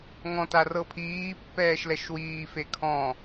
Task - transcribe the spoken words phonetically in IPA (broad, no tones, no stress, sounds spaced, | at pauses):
ŋ ɔ̃ t a r ɤ pʰ iː pː ɛː ʃ l ɛ ʃ w iː f e kʰ ɔ̃